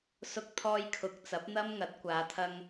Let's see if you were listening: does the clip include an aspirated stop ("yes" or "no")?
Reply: yes